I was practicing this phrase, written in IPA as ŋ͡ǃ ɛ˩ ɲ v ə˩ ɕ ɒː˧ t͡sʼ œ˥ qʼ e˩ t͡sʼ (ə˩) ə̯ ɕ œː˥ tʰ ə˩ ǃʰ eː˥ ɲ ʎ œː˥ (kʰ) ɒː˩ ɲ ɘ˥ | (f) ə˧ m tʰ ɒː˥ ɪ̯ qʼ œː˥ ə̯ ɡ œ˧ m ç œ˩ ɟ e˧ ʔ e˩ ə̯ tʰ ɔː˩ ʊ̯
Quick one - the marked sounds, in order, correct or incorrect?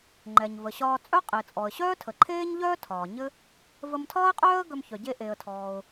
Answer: incorrect: ɔ˩, incorrect: tʰ, incorrect: v

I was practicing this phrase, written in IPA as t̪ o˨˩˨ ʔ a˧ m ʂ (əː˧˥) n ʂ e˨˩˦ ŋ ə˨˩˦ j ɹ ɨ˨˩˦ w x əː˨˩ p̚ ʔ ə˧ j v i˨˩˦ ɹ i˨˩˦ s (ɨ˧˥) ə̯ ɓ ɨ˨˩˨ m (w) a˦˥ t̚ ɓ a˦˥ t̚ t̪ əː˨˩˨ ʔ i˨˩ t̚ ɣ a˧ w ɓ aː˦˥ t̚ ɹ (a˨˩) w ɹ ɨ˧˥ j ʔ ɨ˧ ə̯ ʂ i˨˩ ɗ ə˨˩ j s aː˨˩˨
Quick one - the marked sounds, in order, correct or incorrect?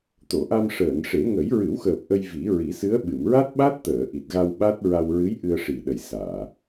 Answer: incorrect: əː˨˩˨, correct, incorrect: ɹ, incorrect: a˧

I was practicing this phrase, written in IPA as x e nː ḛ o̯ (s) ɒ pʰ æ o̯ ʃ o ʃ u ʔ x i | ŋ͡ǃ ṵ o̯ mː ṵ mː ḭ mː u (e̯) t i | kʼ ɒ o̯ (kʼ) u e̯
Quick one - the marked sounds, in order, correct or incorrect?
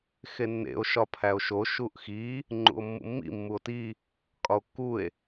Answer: incorrect: ʃ, incorrect: o̯, incorrect: kː

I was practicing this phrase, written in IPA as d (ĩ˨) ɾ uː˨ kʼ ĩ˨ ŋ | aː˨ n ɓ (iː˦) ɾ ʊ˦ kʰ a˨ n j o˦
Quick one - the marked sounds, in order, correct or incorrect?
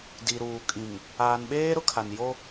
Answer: incorrect: i˨, incorrect: eː˦

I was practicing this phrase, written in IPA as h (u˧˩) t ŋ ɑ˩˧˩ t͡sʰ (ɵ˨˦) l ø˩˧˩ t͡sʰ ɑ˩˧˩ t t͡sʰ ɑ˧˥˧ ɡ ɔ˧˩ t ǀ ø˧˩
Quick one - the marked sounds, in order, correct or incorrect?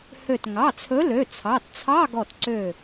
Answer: incorrect: ø˧˩, correct

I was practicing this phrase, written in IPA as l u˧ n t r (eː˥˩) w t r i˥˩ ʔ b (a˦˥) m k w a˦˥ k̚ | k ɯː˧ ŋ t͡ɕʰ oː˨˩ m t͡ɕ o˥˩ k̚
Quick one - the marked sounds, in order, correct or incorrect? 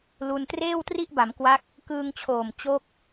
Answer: correct, incorrect: a˩˦

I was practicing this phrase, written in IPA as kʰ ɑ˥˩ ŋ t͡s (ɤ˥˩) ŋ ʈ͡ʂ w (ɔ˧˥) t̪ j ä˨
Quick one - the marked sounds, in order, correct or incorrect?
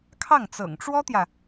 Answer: incorrect: ɤ̰˨˩, incorrect: ɔ˥

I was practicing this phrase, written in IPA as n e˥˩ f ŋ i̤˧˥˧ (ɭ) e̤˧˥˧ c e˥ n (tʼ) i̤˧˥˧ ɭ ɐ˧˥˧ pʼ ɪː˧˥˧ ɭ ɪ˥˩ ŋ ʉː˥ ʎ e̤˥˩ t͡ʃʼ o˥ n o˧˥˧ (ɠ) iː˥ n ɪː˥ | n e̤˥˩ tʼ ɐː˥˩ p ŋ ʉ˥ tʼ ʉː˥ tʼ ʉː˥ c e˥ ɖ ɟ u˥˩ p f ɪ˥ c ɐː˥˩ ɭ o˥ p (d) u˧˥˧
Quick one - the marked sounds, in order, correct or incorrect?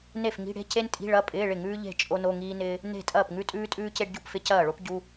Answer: incorrect: ɽ, correct, incorrect: ŋ, incorrect: ɟ

